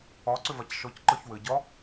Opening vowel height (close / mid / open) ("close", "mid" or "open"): open